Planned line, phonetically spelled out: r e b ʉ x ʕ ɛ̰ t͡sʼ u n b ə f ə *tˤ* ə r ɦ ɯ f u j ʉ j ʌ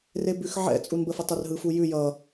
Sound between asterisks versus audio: correct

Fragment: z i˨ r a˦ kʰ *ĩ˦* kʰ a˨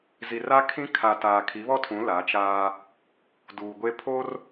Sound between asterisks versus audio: correct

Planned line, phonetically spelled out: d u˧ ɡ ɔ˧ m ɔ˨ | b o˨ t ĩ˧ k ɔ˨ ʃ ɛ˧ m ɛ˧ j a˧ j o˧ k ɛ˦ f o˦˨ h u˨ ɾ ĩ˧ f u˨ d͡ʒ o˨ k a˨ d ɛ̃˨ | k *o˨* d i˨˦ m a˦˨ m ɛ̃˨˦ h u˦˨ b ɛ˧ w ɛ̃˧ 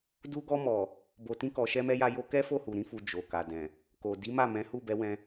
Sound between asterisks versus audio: correct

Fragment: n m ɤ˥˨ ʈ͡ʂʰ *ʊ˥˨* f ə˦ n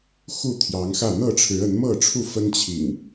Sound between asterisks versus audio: incorrect: u˥˨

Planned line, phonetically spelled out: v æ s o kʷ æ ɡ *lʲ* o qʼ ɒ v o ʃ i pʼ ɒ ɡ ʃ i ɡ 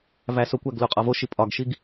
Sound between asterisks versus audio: incorrect: l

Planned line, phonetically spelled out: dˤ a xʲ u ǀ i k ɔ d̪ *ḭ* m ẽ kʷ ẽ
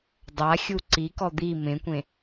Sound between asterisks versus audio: incorrect: i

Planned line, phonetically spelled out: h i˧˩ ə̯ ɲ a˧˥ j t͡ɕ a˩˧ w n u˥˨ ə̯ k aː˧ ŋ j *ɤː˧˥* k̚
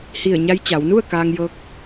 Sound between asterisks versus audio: correct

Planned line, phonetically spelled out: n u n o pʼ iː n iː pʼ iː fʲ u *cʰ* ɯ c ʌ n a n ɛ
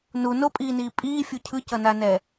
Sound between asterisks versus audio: correct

